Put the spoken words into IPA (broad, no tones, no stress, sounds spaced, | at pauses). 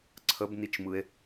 ǀʰ ə b n i t͡ʃ m ɯ e̯